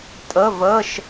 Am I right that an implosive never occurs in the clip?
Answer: yes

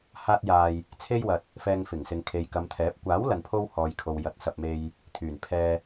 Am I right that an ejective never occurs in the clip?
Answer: yes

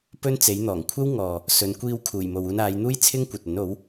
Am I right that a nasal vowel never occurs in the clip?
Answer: yes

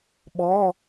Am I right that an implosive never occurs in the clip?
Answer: no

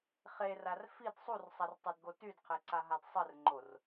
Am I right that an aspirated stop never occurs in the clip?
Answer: no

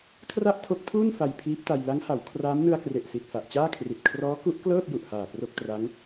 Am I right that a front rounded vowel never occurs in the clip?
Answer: yes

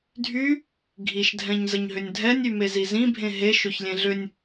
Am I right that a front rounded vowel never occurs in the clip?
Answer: no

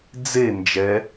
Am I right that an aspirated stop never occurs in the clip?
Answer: yes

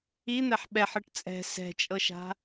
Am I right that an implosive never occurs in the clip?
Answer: no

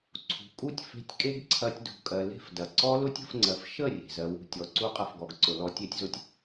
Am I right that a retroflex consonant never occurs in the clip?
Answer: yes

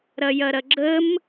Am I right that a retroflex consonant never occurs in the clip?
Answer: yes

